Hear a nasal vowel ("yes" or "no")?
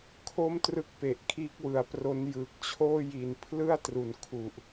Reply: no